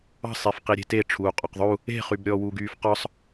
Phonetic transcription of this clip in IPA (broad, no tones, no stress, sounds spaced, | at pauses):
ɑ̤ sˤ e f q i ɾʲ e̤ t e ʈ͡ʂʰ uː qʼ ɔ q ðˤ u | e̤ χ y b ɾʲ ɔː w uː ɡ yː f q ɒ sˤ